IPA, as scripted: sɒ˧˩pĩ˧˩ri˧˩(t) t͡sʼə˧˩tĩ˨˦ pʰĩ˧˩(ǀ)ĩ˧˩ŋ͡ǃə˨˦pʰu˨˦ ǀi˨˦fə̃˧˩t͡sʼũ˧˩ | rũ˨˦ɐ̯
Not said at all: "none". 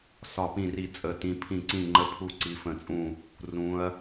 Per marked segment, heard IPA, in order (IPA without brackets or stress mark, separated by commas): none, ǀ